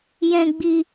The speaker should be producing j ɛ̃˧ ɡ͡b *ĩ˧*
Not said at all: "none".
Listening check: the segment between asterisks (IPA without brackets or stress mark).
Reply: i˧